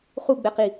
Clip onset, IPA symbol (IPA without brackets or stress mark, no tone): χ